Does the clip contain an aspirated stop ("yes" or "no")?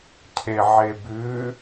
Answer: yes